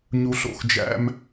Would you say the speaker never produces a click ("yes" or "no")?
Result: yes